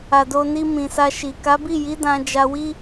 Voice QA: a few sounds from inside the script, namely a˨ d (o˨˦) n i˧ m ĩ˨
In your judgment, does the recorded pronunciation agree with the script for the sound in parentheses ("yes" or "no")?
no